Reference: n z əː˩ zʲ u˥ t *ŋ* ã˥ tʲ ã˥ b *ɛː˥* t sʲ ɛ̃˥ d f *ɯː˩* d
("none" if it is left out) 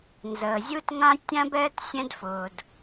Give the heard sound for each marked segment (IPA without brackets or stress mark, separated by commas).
ŋ, ɛː˥, ʊː˩